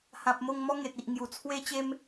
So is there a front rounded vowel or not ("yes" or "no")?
no